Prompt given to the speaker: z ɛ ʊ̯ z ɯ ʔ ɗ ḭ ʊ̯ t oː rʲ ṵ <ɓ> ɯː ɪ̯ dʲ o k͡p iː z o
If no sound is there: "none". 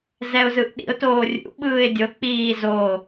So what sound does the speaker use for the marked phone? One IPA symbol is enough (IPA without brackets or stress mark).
ɓ